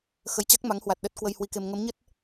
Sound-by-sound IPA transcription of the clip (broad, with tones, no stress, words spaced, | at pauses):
xə˨˦jt͡ɕa˦˥k̚ma˨˦ŋhwa˨˩t̚ ɗə˦˥t̚kwə˧j hwi˧ke˧m ŋə˨˦mɲə˦˥t̚